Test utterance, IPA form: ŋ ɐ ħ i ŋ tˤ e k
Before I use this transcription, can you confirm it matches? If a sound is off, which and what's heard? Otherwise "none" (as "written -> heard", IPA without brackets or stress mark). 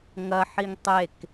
none